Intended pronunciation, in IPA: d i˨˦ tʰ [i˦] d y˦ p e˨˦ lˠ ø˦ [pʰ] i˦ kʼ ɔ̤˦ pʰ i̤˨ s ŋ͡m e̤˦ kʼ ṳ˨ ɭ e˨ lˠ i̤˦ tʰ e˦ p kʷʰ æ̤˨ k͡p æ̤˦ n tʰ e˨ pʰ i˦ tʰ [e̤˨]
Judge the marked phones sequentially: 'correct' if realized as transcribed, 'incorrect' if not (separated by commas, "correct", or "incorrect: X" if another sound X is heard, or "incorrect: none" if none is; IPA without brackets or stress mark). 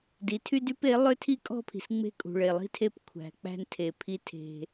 incorrect: y˦, incorrect: tʰ, incorrect: e̤˦